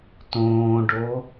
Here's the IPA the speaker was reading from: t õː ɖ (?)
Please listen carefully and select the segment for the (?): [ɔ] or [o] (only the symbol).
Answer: o